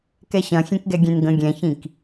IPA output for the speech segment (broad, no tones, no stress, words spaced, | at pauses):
kɛɕɐ̃xʲẽkɡɛ ɡʲẽnɡə̃ ɡʲɛ̃çĩk